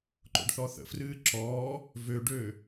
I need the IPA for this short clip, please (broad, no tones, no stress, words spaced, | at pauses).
ǃo̰ɖθɔθə̰frɨː ǁɔː | vøɖøː